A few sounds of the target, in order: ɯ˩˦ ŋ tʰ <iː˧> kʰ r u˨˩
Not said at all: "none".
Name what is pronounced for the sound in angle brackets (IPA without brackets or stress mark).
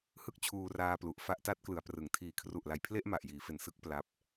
iː˩˦